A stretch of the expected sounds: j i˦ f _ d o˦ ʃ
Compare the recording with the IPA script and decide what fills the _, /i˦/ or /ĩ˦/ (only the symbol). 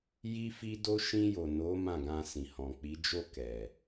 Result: i˦